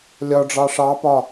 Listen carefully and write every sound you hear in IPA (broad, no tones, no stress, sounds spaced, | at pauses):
lʲ ɒ ɖ͡ʐ ɑ ʂ ɑ p ɒ